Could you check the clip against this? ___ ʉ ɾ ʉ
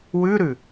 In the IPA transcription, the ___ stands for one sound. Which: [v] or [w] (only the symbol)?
w